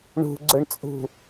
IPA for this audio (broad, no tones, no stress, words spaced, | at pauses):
ɳṳɡ͡ǀʊɳt͡sʼṳ